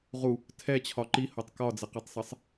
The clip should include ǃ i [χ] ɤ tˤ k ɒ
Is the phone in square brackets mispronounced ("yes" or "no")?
yes